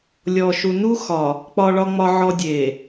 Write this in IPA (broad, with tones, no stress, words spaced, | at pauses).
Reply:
lʲɔ˨ʃu˨ nu˦xɒ˨ | k͡pɒ˨ɭɒ˨ŋ͡mɒ˨ʕɔ˨ dʲe˨